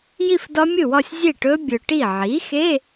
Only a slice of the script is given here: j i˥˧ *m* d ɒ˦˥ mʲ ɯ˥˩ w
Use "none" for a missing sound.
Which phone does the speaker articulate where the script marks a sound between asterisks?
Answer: f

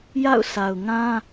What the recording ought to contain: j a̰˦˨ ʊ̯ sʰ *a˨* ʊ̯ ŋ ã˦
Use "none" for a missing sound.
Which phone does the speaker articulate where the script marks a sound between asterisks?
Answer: a˨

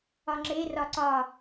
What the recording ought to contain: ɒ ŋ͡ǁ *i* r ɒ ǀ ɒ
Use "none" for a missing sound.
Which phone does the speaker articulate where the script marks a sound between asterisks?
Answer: e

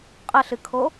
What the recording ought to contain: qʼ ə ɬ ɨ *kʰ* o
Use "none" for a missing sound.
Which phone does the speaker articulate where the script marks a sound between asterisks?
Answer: kʰ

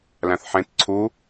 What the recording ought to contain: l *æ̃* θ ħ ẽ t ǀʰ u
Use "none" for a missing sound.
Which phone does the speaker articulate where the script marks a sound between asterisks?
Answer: æ̃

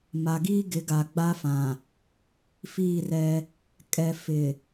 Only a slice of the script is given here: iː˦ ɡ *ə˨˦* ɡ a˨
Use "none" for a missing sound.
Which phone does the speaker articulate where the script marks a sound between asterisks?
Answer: ɪ˨˦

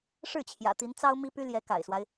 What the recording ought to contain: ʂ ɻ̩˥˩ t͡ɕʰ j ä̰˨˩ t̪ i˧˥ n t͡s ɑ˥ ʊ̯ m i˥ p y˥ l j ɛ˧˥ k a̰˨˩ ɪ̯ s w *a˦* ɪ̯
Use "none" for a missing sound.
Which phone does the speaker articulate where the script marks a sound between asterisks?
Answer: a˦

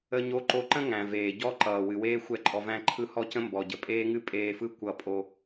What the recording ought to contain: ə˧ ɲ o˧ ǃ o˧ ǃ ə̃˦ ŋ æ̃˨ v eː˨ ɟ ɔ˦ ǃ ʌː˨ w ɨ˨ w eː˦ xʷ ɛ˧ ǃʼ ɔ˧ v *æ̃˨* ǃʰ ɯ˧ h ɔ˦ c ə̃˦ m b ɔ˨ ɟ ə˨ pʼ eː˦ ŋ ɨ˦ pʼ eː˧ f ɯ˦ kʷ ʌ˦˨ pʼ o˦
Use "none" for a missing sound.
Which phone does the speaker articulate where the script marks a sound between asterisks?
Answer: æ̃˧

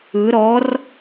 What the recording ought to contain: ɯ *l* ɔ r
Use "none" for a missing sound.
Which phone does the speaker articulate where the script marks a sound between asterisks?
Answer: ɾ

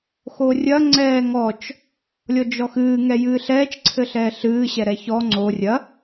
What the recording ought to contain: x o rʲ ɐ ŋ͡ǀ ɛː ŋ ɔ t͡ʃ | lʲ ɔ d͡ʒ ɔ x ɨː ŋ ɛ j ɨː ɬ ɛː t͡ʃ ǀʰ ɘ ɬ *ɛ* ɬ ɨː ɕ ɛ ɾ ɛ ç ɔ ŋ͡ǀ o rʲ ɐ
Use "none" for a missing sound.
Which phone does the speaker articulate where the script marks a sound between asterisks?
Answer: ɛː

